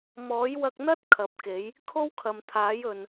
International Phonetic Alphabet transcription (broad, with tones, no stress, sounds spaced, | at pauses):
m ɔː˨˥ j w ɐ˧ k̚ n̪ ɐ˥ t̚ kʰ ɐ˨˥ p̚ k e˨˥ j | kʰ o˥ w kʰ ɐ˨ m t̪ʰ aː˨˥ j ɵ˨ n